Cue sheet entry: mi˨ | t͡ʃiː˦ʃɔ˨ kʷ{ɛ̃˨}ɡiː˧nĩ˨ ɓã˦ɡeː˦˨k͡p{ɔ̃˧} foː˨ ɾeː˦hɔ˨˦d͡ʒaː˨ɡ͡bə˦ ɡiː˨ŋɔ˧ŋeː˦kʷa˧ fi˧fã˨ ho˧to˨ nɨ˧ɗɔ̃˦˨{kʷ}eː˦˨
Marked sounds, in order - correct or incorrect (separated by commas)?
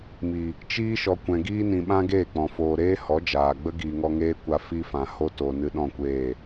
correct, incorrect, correct